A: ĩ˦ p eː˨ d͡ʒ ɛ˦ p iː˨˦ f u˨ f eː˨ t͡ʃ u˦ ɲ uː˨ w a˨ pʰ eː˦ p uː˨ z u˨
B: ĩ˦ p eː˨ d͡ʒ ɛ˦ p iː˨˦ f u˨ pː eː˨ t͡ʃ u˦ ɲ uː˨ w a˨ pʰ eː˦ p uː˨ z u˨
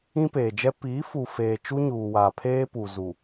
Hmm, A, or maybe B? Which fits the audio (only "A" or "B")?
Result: A